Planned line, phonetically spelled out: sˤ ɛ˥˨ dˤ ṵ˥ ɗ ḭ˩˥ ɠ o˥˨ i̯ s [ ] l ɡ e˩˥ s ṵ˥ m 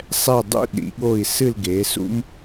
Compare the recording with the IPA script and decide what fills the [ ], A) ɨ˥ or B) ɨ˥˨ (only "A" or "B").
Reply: B